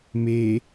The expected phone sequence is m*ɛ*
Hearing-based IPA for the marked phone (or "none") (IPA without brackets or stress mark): e